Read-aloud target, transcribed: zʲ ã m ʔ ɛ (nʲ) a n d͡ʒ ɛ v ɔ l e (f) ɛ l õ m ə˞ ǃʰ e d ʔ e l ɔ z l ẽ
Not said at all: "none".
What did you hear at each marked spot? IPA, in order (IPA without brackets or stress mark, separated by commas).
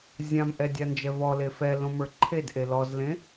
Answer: dʲ, f